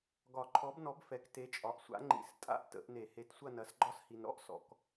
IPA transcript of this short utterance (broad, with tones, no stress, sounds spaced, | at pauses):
ɡ ɒ˨˩˦ ǃʰ ɔ˨˥ b n ɔ˨˥ b f ɛ˨ k t e˨˥ t͡ʃʼ ɒ˨ ʔ sʷ a̰˨˥ ŋ͡ǃ ḭ˨˩˦ s tʼ a̰˥ ʔ t ə̰˨˩˦ ʔ n e˨˩˦ h e˨˥ t sʷ ɐ˥˧ n ɐ˨˥ s ɡ͡ǃ ɒ˥ s h i˨ n ɾ ɔ̰˥ ʔ s ɔ̰˨˩˦ k